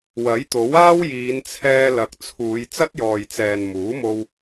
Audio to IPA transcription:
w ɐ˨˥ j t̪ o˨˥ w aː˥ w j iː˨˧ n t͡sʰ ɛː˧ l ɐ˨ k̚ t͡sʰ uː˨˧ j t͡s ɐ˥ t̚ j ɔː˨ j t͡s ɛː˨ n m uː˨˥ m o˧ w

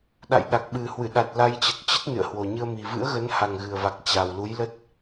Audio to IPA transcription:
ɗ a̰˧˨ j ɗ a˨˩ k̚ ɓ ɨ˨˩ h w ɨ˧˩ ɗ a˨˩ t̚ l a˧ j t͡ɕ ə˨˩ t̚ t͡ɕ ə˦˥ t̚ n ɨ̰˧˨ ə̯ h w o˨˩ ɲ ɨ˧ ə̯ m i˨˩ v ɨ̰˧˥ ə̯ ɣ ə˨˦ n h a˨˩ ŋ ɣ ɨ˨˩ ə̯ v a˨˩ k̚ t͡ɕ a˨˩ w l u˨˦ j l ə˦˥ t̚

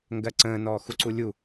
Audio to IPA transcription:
ŋ ɡ ɜ ǀ ə̃ː n ɔː x u ǀ u lʲ u

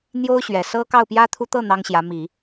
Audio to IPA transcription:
n̪ j o˥ ʊ̯ ɕ ɥ ɛ˨˩ s ɤ˥ k ɑ˥˩ ʊ̯ p j ä˥ t̪ʰ u˥ t̪ ɤ˥˩ n̪ ɑ˥ ŋ ɕ j ä˧˥ m i˨˩˦

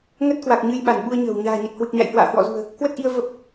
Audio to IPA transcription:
ŋ ə˦˥ t̚ k w a˨˩ k̚ ɲ ɨ˧ j ɓ a˧˩ n ɓ u˧ ə̯ ɲ ə̤ː˨˩ w ɲ a̤ː˨˩ ɲ ə˨˩ t̚ h w ɨ˨˩ k̚ ɲ a̰˧˨ j h w a̰ː˧˨ h w ɔ̰˧˨ z ṳ˨˩ ə̯ | k w ə˦˥ t̚ ʔ i˧ ə̯ v ə˦˥ p̚

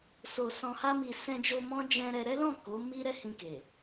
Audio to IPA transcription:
s o˨ s ɔ̃˨ h a˧ m i˨ s ɛ̃˧ d͡ʒ o˧ m ɔ̃˦ d͡ʒ ɛ̃˧ ɾ ɛ˧ ɾ ɛ˦ l ɔ̃˦˨ k o˨˦ m i˦ ɾ ɛ˦ h ĩ˧ k e˨

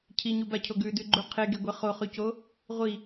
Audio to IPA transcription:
cʰ i ɲ u b a cʰ o ɡ ʉ d ʉ ɡ͡ǃ u qʰ e ɡ e ɡʷ e χ o χ ʉ c o | ʁʷ i

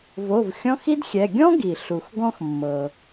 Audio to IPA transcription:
v o˩˧˩ v xʲ ɔ̃˧˥˧ x i˥ d xʲ ɛ˩˧˩ ɡʲ ɔ̃˥ ɡ i˩ ɬ u˩ x ɡ ɔ̃˥ x mː ɤ˩

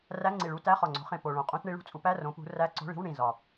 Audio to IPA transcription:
r æ˧˥˧ ŋ͡ǀ i˨˩ ɭ u˧˥˧ t æ˧˥˧ χ ɒ˨˩ ŋ͡ǀ o̤˨˦ χ ẽ˨˩ p o˨˩ ɭ õ˨˩ qʼ ũ˧˥˧ t ɳ i˨˦ ɭ ṳ˨˦ t͡sʼ u˨˦ p æ˧˥˧ r õ˨˦ p ṳ˨˦ r æ˧˥˧ ǀ o̤˧˥˧ ɭ i̤˧˥˧ w ɳ ĩ˨˩ z ɒ˨˩

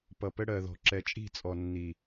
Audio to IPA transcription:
p ʌ˨ p ə˦ ɽ ɜ˨ ð ɔ̤˨ ǁ ɛ˨ t͡ʃʼ i̤˦˨ t͡sʼ ɔ˨ nː i˨

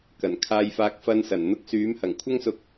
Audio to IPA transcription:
k ɐ˨˩ n kʰ aː˧ j f aː˧ k̚ f ɐ˧ n s ɐ˨˩ n n̪ ʊ˧ k̚ s yː˨˥ m h ɐ˨˩ ŋ kʷʰ ɐ˥ ŋ s ʊ˧ k̚

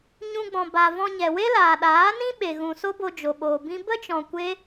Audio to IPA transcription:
ɲ ũ˧ ɡ͡b ɔ̃˨ b a˨ v ɔ̃˧ ɲ ɛ˨ w e˦ l aː˨ ɗ aː˨˦ n ĩ˦ ɓ e˨ ɣ ũ˨ s o˦ b o˧ d͡ʒ o˨ ɓ oː˨ b ĩ˦ b ə˦ t͡ʃ ɔ̃˨ kʷ e˦

